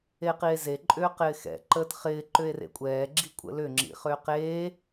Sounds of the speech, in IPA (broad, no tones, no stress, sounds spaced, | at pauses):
e q i e̯ z e ǃʼ ʏː q ɪː x ɛ̰ ǃ əː t χ ɪː ǃ ʏ e̯ r ḛ kʷʼ ɛː ɡ͡ǁ i kʷʼ ə̰ l ʏ ŋ͡ǁ ḭ χ ʏː q eː